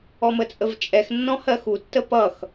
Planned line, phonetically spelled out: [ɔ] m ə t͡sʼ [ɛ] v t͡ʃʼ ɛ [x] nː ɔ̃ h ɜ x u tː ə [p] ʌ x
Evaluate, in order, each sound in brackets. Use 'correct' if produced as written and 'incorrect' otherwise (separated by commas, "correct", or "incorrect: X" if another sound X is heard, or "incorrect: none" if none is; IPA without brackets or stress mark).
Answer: correct, incorrect: ə, correct, correct